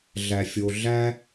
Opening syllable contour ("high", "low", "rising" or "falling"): low